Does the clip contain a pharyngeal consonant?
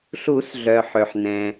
yes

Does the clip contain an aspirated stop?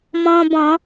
no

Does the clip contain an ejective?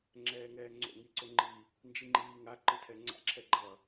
no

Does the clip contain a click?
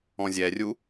no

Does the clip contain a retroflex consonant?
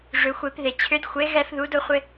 yes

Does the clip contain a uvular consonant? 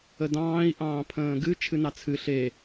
no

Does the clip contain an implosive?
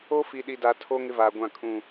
yes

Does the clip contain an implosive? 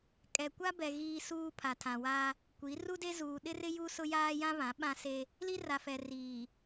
yes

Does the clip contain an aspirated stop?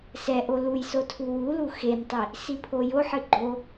yes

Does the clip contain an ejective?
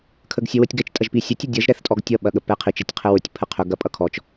yes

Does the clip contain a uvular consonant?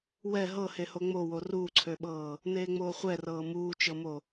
yes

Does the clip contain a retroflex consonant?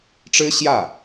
yes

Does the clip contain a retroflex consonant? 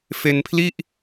no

